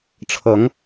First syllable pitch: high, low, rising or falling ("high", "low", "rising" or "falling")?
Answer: rising